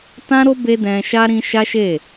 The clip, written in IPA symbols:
tã˦ɾo˦ be˦dɛ̃˧ʃa˦ ɾĩ˦ ʃa˦ʃe˦˨

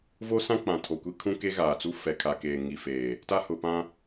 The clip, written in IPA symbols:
vo˦sã˦ k͡pã˨tʰo˨kʷi˦ kʰũ˦ke˦ɣaː˨t͡su˦ fɛ˨kʰa˨ keː˨ŋi˨feː˨ | ta˦hʊ˨pã˦

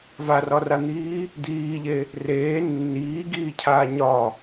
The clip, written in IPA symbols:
varɒran̪iː | d̪iːʎe | reː nːiːɡiːcʰaː ɲɒ

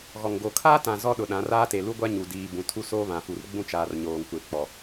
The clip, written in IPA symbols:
ɣɔ˨ŋɡo˨ kʰaː˦tã˨ zɔ˦ɗʊ˨ɗã˨˦r aː˦te˨ lu˦ɡʷa˦ ɲu˨diː˨bũ˨ tʰu˦soː˦βã˨fu˨r ɡ͡bũ˦t͡ʃaː˨rɲoː˨ŋkʷe˨ k͡pɔ˨

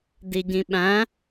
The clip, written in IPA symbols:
diɟĩɓæ̃

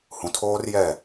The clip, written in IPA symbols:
hũ˨tʰoː˦rjɛ˦˨

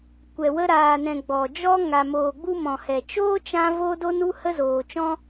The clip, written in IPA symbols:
kʷɛ˨ wə˧ɾaː˨nɛ̃˨ ɡ͡bɔ˨ d͡ʒɔ˧ ŋa˨moː˨ ɡ͡bu˦mɔ̃˨hɛ˨ t͡ʃoː˦t͡ʃã˧ vo˦do˦nu˦ hə˦zoː˨t͡ʃɔ̃˦

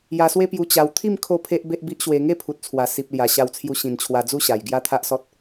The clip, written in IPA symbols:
ja˧swe˦pju˧ t͡ɕa˧w t̪ʰi˥˧m kʰo˥˧pʰe˦ʔ be˦ʔbi˦ʔɕwe˧ ŋe˥˧pʰu˨t̚t͡sʰwa˨˩ si˨p̚lja˨˩ ɕa˧wt͡sʰju˧ ɕĩ˨˩nt͡ɕʰwa˧d͡zu˥˧ ɕa˨˩jɡja˦t̪ʰa˦ʔsɔ˦t̚

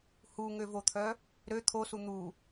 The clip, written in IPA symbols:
huŋøvot̪ʰœ | ɾø t̪ʰosu n̪u

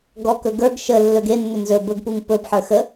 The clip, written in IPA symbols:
ɡɔkɵ ɡə˞ɡ ʃə lːɵɡenːʏ nzɵ bɵɡpuŋ pɵbħə˞ xə

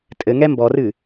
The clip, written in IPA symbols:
tʼɘŋɛ mbɔrɨ

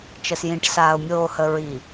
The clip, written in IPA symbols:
t͡ʃə˨sjĩ˨ʈsaː˨ʊ̯ mʲoː˨hə˨ ɹi˨

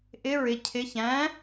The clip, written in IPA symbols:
ʔɪ ɹɪ cʰɪ çæ̃

